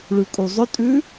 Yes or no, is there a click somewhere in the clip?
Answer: no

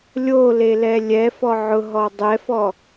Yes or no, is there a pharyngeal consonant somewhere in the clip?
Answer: yes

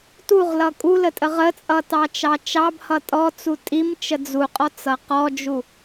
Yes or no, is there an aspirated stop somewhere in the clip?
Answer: no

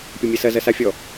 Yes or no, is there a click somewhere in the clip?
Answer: no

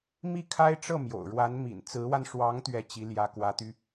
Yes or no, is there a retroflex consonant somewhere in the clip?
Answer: yes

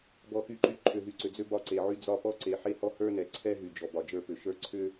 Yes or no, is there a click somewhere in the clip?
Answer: yes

